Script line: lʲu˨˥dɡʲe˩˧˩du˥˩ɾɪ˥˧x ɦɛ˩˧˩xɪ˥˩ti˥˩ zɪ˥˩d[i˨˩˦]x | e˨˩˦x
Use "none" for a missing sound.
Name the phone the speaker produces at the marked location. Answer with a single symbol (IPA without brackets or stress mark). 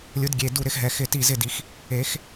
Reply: i˨˩˦